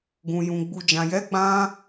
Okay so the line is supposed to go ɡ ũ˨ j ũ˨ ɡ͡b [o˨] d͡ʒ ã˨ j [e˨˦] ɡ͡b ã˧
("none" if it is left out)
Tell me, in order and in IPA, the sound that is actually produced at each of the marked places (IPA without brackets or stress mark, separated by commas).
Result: u˨, ɛ˨˦